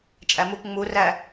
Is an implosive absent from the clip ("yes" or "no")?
yes